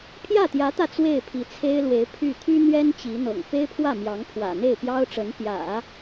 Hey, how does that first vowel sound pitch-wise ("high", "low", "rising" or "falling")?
falling